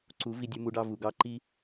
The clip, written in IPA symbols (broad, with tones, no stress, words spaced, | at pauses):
ǀu˨˦ vi˧dʲu˧ mu˧ɖɑ˧ vu˨ɡɑ˦ǃi˦